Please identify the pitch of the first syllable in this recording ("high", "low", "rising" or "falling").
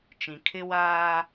low